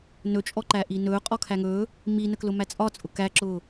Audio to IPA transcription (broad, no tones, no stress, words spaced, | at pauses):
nɵt͡ʃʼɔǃæ ʔinɵː qʼɔkʰæŋɵː | minəklʊ mæt͡sʼɒ t͡sʼʊkæǁʊː